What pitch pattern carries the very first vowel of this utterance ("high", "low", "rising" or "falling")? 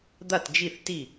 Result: falling